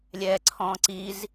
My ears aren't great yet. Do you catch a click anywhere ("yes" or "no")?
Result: yes